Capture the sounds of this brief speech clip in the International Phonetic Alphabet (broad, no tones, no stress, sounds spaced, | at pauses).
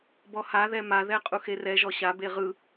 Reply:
b ɔ h a ð ɛ m a ð ɛ qʼ u x e r ɛ ʒ ɔ ɕ a b e ʁ ɯ